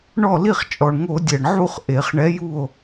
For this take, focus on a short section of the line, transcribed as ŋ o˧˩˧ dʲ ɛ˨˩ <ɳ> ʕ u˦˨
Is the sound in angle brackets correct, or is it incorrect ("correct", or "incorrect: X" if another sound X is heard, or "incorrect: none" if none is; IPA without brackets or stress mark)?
correct